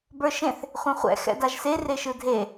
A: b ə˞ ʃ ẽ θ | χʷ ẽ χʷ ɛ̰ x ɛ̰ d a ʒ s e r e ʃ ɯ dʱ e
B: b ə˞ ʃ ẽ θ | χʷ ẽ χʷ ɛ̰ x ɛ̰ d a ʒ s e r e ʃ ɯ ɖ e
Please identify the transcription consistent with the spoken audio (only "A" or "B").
A